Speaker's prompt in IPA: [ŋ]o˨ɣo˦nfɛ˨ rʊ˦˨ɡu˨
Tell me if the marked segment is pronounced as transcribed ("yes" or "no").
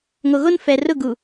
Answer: yes